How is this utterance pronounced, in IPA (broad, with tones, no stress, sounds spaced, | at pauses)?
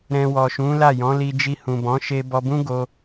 ɾ ɛ̃˧ w ɔ˨ ʃ ũ˨˦ l a˦˨ j ɔ̃˨˦ l i˧ d͡ʒ i˧ h ũ˨ b ɔ̃˨˦ ʃ e˧ b ɔ˧ b ũ˦ ɡ o˧